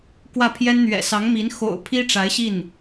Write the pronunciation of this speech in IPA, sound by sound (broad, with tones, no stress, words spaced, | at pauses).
kwä˥˩pʰjɛ˥n n̪ɥɛ̰˨˩sɑ˧˥ŋmi˧˥n xo̰˨˩ʊ̯ pʰi˥ʈ͡ʂa˧˥ɪ̯ɕi˥˩n